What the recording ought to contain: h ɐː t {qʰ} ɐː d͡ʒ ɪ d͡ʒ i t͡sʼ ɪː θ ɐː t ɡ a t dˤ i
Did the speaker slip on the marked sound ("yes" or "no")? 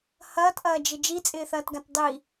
yes